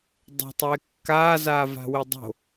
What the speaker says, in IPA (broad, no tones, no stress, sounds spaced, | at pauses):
dˤ o̤ tˤ eː kː aː z aː v a̤ w e dˤ o̤